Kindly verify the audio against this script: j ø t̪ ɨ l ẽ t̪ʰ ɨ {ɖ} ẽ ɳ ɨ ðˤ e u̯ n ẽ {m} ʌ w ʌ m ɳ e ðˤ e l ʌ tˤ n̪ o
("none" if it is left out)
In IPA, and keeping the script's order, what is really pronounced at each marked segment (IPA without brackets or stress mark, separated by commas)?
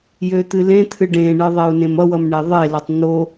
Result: ɖ, m